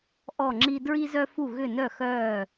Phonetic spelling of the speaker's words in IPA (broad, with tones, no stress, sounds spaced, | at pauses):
ʔ ɔ˥˧ ŋ͡ǁ i˥ d ɹ i˥ z œ˥ f u˥˧ ɣ ʏ˥˧ n œ˥˧ x œ˥˧